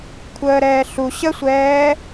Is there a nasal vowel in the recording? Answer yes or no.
no